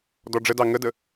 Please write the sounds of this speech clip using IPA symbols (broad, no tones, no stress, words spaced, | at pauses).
dɔɖ͡ʐədɑ ŋədə